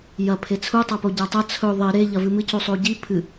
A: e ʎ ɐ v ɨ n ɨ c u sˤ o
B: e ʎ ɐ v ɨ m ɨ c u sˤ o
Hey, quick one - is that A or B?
B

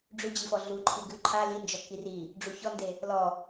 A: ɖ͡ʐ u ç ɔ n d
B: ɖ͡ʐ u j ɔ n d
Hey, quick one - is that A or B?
A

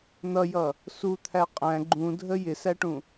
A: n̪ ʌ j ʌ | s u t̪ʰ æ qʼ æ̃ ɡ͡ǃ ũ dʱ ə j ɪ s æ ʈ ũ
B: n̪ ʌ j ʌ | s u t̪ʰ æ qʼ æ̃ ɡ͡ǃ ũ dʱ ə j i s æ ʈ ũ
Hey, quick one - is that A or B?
A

